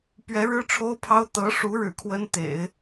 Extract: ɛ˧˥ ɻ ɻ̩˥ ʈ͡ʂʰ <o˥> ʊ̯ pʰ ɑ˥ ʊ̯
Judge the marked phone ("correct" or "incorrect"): correct